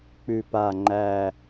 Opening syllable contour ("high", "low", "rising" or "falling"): low